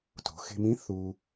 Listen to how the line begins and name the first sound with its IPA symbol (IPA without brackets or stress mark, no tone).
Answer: t